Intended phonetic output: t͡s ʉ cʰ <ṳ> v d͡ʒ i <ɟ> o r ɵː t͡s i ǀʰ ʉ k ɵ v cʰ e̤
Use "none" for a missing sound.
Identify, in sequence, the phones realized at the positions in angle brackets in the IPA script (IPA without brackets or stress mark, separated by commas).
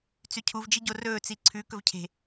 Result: u, ɟ